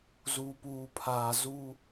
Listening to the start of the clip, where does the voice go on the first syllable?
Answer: low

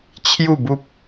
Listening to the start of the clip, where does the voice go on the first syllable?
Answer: falling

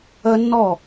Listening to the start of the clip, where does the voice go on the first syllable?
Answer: high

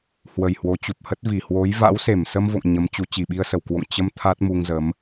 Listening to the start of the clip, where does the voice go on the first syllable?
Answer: low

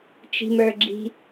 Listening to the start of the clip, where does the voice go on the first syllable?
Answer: high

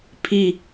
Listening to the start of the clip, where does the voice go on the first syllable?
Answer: falling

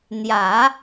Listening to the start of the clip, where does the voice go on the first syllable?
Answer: low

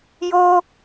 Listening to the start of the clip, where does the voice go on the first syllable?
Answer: high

